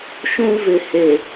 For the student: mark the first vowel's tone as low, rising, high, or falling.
high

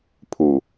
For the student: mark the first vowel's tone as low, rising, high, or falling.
low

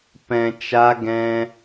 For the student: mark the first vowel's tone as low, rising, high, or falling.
low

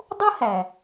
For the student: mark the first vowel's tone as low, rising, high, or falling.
high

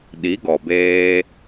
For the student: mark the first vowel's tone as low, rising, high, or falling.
rising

